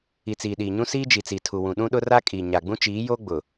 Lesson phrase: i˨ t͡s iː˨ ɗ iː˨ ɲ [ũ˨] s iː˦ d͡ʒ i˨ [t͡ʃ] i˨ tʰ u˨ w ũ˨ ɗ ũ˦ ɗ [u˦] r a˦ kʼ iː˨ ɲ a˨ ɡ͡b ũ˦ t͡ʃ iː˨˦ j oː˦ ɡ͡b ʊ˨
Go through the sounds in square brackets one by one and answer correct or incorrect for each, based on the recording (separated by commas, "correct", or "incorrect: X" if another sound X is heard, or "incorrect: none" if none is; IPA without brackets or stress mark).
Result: incorrect: ũ˦, incorrect: t͡s, incorrect: ʊ˦